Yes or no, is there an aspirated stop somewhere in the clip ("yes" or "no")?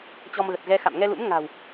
no